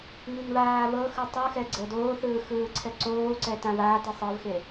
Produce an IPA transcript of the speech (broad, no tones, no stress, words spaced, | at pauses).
ŋiŋβaːβɤxɯ tˤɯxɛ ɡ͡ǀɤdoːθɯː xɯːǀʰɛǀoːǀɛ tãβaːti sˤɤvxe